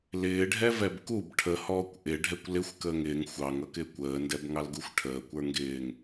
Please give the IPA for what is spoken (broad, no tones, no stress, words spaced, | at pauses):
lɪːɖʱɛvɛb kub ʈʰəhɔːkʷ ʔɪɖʱɛkʷ lɪxʷkəːŋ ɪːŋ xʷɑŋʌkɪːkʷ əːndɛbŋɑlɡuxʷ ʈʰəːkʷə˞ ŋɡɪːŋ